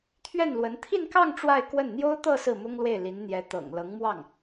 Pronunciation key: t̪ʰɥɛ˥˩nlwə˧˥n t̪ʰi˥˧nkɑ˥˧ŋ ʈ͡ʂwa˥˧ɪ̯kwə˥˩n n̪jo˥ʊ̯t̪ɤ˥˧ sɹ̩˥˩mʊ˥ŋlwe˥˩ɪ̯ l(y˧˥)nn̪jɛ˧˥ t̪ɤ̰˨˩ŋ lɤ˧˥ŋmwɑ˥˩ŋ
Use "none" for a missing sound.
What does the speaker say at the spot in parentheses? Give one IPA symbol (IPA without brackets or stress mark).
i˧˥